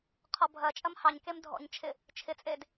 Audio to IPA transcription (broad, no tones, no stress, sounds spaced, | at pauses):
qʰ ɔ bʱ ɐ t͡ʃʼ ɐ m h ɑ ɲ k e m dʱ ɔ̰ ɲ t͡ʃʰ ɪ | t͡ʃʰ ɪ t͡sʼ e d